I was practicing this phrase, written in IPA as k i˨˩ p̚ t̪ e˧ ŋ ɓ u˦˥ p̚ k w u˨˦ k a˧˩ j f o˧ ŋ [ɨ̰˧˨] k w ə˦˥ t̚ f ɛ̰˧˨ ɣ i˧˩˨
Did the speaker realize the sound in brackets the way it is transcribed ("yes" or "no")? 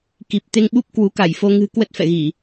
no